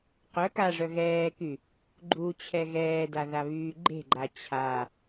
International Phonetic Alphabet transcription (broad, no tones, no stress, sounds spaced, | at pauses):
q œ k a ʐ œ ɣ ɛː k y | ɡ͡ǃ u t͡ɕʰ ɛ ɣ ɛː d a ð a β yː ɡ͡ǃ e̤ ɡ͡ǃ a t͡ɕʰ a